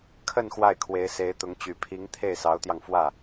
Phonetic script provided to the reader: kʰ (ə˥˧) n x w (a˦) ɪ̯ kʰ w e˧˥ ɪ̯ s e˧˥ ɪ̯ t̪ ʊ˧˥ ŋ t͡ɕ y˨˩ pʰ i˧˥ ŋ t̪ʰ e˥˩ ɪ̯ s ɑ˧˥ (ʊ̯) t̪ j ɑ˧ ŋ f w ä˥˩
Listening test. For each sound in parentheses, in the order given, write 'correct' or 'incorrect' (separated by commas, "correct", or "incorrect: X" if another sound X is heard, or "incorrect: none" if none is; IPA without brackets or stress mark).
correct, incorrect: a˥˩, correct